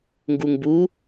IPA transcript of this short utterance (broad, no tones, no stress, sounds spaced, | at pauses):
ŋ ɡ u ŋ b u